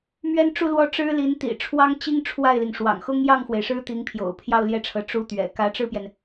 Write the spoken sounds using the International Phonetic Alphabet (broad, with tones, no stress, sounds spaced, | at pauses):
m ɥ ɛ˥ n ʈ͡ʂ u˥˧ l w ɔ˥˩ ʈ͡ʂ ɻ̩˥ l i˧˥ n t̪ ḭ˨˩ ʈ͡ʂʰ w ɑ˥ ŋ t͡ɕ i˥ ŋ ʈ͡ʂʰ w a˥˩ ɪ̯ l i˩ ŋ ʂ w ɑ̰˨˩ ŋ x ʊ˥ ŋ j ɑ˥˩ ŋ x w e˩ ɪ̯ ʂ ɻ̩˥ t̪ i˧˥ ŋ pʰ j o̰˨˩ ʊ̯ pʰ j ɑ˥˧ ʊ̯ l j ɛ˥˩ ʈ͡ʂʰ ɤ˧˥ ʈ͡ʂ u˧˥ t̪ ɥ ɛ̰˨˩ k ä˧˥ ʈ͡ʂ ɻ̩˥˩ p j ɛ˩ n